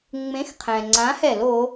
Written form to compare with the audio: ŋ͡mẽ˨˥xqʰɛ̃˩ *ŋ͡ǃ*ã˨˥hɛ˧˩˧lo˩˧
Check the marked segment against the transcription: incorrect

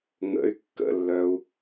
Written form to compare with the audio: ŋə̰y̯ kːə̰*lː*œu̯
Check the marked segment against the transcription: correct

